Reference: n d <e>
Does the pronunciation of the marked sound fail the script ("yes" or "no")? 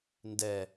yes